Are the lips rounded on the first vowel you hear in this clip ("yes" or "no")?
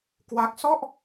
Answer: no